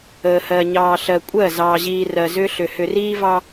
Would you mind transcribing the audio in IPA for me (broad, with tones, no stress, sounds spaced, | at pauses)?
əː˨ h ɜ˨ ɲ ɑː˨ ɬ ɜ˨ kʷʼ ɜ˦˨ z ɑː˨ ʑ iː˨ r ɜ˨ z ʏː˦ ɬ ʏ˨ h ʏ˨ r iː˦ v ɑ˦